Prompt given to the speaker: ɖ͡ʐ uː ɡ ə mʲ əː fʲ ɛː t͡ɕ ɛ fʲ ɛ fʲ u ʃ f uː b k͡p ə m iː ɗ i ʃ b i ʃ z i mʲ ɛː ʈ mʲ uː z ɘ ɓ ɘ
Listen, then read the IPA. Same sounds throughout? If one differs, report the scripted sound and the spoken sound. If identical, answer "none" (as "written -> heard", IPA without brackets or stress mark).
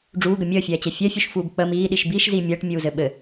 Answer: none